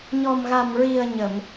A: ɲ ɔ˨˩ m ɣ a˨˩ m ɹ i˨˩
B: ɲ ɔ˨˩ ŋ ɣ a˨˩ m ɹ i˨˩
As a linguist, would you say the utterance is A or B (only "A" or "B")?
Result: A